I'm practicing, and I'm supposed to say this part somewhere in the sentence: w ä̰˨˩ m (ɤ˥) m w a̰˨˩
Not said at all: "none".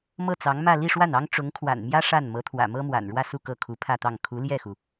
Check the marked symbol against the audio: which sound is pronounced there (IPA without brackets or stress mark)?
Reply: ɤ˥